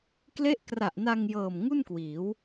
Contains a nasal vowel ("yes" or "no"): no